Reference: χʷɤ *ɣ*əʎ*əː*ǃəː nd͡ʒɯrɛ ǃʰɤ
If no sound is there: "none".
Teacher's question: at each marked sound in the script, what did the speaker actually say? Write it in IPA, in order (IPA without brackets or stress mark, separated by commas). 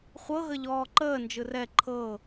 ɣ, ɔː